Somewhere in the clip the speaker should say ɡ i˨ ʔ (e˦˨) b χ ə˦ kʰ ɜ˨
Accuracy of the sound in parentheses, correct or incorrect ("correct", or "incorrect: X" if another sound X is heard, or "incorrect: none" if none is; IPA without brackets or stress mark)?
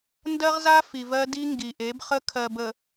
incorrect: e˨˦